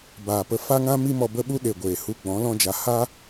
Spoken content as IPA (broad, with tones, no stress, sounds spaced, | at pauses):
b aː˨ p ə˧ f a˦ ŋ ã˦ m i˦ m ɔ˧ b ə˦ ɓ u˦ ɗ e˨ ɡʷ eː˨ h u˧ ɡ͡b ɔ̃˨˦ l ɔ̃˦ d͡ʒ a˧ h a˦